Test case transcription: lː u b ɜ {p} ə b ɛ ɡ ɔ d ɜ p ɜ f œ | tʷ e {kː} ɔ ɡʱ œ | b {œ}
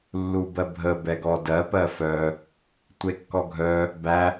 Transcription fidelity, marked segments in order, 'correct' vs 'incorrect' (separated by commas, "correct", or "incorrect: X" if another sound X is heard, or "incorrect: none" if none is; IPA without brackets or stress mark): incorrect: bʱ, correct, incorrect: æ